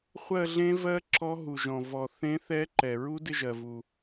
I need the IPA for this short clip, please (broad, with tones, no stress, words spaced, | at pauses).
χʷɜ˦˨ɮẽ˧˥vɜ˧˥ ǁɔ˧˥ ɦu˩ʒɔ̃˩ vɔ˩ θẽ˧˥θɛ˧˥ǃɛ˩ ɹu˧˥dɪ˦˨ʒɜ˩vu˩